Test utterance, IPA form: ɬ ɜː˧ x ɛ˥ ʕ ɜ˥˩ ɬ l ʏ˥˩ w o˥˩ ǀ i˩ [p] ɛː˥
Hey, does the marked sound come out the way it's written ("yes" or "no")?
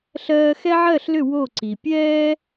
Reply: no